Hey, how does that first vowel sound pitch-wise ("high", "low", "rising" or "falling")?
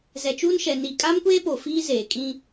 low